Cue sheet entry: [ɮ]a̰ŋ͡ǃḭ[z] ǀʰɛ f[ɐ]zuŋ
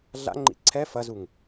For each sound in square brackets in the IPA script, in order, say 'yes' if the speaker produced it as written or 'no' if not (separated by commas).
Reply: yes, no, yes